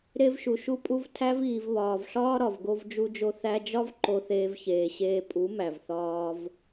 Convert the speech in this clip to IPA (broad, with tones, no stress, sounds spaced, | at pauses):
ɾ e˧ v ʃ u˨ ʃ u˧ pʼ u˧ v tʰ æ˧ v iː˨ v β ɒː˨ v ɬ ɒː˦ ɾ ɒ˨ v ɡ o˧ v d͡ʒ u˧ d͡ʒ o˧ θ æ˧ d͡ʒ ɒ˦ v ǃ o˧ θ eː˧ v ç eː˨ ɕ eː˧ pʼ u˨˦ m æ˨ v θ ɒː˧ v